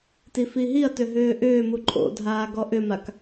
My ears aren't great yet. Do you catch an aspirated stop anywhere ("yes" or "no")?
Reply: no